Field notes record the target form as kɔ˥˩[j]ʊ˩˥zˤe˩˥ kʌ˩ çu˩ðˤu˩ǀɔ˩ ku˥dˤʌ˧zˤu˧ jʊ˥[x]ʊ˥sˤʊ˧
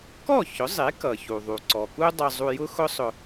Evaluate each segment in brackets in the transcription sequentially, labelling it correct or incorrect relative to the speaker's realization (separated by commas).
incorrect, correct